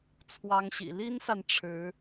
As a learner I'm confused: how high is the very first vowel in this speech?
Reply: low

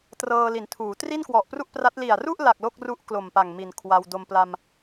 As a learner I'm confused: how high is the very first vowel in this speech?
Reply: mid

